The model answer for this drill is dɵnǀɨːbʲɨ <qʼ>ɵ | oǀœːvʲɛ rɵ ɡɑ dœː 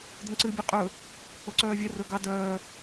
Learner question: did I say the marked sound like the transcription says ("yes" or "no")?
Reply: yes